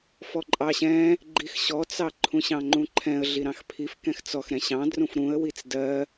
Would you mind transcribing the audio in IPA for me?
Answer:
f ɔ ǃʼ ɑ ɕ ɛ̃ | ɡ͡ǃ i x ɕ ɔ t͡s ɑ ǃʰ ũ ɕ ɑ̃ ŋ͡ǃ ũ ǃʰ ɛ̃ ə̯ ɮ i ɾ ɑ̃ x pʰ i f k ɛ̃ x t͡s ɔ x ɾ ɛ̃ ɕ ɑ̃ d r ũ f ɾ ũ ə̯ w i t͡s d ɜ

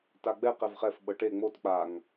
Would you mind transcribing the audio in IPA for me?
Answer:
t a ɡ͡b ɛ q ɛ v χ ɛ f ɓ ɤ ʈ e ŋ͡m o t k͡p a ŋ

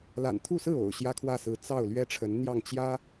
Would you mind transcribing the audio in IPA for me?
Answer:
l a̰˨˩ n t̪ʰ u˥˧ s ɹ̩˥˩ o̰˨˩ ʊ̯ ɕ j ä˥ kʰ w ä˥˩ s ɹ̩˧˥ t͡s ɑ˥˩ ʊ̯ l ɥ ɛ˥ ʈ͡ʂʰ ə˧˥ n n̪ j ɑ˥˩ ŋ t͡ɕ j ä˥

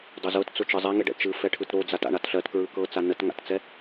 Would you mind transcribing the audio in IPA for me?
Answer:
dˤ o z ɤ t t͡s ʊ t͡ʃ ɯ zˤ ɛ ŋ e ɖ ɛ̰ t͡ʃ ɯ f ɛ ʈʰ ɯ t ɾ o d͡z a t a̰ ɳ a t ɬ ɜ t k ɹ ɯ k ɤ t͡s a n ə t ŋ a̰ t t͡s ɛ

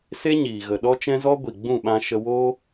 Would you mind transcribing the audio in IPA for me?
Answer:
s e˦ ɲ iː˨ ɣ ə˨ ɗ ɔ˦ t͡ʃ ɛ̃˦ z ɔ˦ ɡʷ i˨ ɡ͡b ũ˦˨ ɓ ã˧ ʃ ə˧ w oː˦

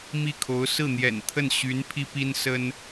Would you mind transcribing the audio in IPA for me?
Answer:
m i˥˩ kʰ o˧˥ ʊ̯ s ɹ̩˥˩ n̪ j ɛ̰˨˩ n t̪ʰ ə˥˩ n ɕ y˧˥ n pʰ i˥ p i˥ n s ə˥ n

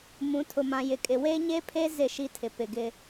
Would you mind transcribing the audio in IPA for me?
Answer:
m ũ˨˦ tʰ ʊ˨ m ã˨ j ɪ˨ kʼ ɪ˨ w e˦ ɲ e˦ pʰ e˦ z ɪ˦˨ ʃ i˦ tʰ ɪ˨ p ɪ˨ ɡ ɪ˦

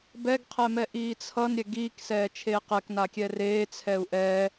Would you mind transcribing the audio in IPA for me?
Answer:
b ɛ ɡ qʰ ɛ m ɛ ʔ iː t͡sʰ ʌ n ɾʲ ɛ ɡ iː k s ɛː t͡ʃʰ eː q ɛ k n a kʲ ɛ r eː t͡sʰ ɛ u̯ ʔ ɛː

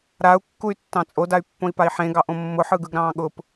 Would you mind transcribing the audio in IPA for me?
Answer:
ɾ a u̯ kː u y̯ tː ɑ̃ t͡sʼ o d a y̯ pː õ i̯ p a i̯ ħ ẽ ɡ ɑ ʔ õ mː ʊ ħ ɯ ɡ ɯ ɡ ɾ ɑ̃ː ɠ ʊ p

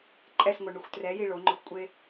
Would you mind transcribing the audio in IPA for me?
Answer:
ǃʼ ɛ s ŋʷ ɛ ɳ u xʷ t r ɛ j i ɭ o ŋ͡ǃ ʊ xʷ kʷʼ e

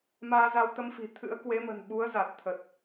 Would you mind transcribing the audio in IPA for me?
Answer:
m aː˧ z a˧ w t̪ ə˧ m f i̤˨˩ t̪ʰ ɨ̰˧˥ ə̯ k w e˨˦ m ə̤˨˩ n ɓ u˨˦ ə̯ z a˨˩ t̚ t̪ʰ ə˨˩ t̚

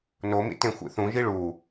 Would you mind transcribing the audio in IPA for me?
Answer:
n o m ḭ t ẽ xʷ ḭ θ ũ ʒ i ɭ uː

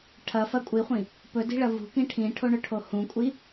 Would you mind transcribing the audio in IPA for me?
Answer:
ʈʰ ɐ f ɐ kʷʼ i χʷ ĩ | p ɵ d i̤ ɭ ɐ v ṳ k ĩ ʈʰ ĩ ʈʰ o ɳ ɵ ʈʰ o h ũ kʷʼ i

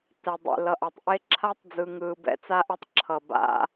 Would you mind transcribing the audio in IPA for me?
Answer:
t ɛ˨ dˤ ḛ˨ l ʌ˨ ʔ a˨ tˤ ʔ e˦ ǁʰ a˦ tˤ d͡z ɯ˨ ŋ ɯː˨ b ɛ̰˦ t͡s a˦ ʔ ɛ˦ tˤ ǁʰ ʌ˨ b a̰˦

